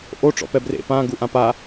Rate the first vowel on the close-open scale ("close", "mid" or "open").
mid